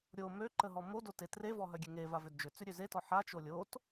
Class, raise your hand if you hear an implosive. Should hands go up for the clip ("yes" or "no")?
no